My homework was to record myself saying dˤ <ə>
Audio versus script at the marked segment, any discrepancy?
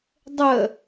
no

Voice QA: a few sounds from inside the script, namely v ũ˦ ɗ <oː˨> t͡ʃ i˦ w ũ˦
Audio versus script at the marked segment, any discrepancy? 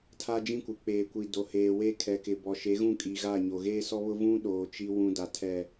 no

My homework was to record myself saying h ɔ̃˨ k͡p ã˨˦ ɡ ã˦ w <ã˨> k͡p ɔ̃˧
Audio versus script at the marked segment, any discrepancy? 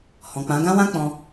yes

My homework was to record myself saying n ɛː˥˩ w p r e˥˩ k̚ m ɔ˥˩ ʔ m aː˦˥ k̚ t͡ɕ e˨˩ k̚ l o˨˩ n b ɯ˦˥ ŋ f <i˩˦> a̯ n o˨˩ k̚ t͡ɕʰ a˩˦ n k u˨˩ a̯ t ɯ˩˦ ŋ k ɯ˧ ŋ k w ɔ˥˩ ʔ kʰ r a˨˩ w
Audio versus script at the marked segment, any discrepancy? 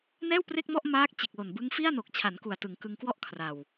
yes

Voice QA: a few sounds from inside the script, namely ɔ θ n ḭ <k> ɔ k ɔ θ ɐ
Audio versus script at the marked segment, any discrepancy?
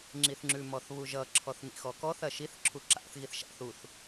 yes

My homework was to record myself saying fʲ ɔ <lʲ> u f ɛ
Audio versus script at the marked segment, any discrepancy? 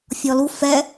yes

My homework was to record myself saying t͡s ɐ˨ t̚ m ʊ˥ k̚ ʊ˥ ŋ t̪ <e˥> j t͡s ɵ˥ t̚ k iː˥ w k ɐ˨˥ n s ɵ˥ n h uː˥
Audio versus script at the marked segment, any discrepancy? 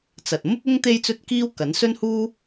no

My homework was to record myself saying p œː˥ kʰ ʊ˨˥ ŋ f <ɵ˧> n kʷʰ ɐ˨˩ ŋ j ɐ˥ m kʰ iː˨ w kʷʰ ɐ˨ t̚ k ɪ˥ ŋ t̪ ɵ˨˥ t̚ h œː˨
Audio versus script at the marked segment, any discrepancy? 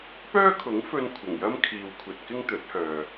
no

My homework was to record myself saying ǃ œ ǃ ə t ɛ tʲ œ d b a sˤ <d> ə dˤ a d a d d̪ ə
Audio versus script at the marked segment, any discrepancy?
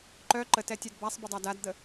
yes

